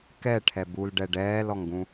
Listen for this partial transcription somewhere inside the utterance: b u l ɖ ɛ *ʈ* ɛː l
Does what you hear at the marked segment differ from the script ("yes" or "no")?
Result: yes